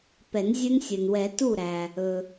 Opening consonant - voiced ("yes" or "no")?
no